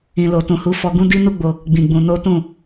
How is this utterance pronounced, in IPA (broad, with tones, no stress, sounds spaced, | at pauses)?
ĩ˨ l o˨ t ũ˨ h u˧ f ɔ˧ ɡ ũ˦ d i˦ n u˦ ɡ͡b o˧ | ɡ͡b ĩ˧ ɡ͡b ũ˧ n o˦ t ũ˦˨